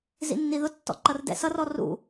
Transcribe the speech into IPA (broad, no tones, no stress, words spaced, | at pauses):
zḭnːiðʊtːɔ̰ ǃʌrdɛ̰sʌrɔ rṵ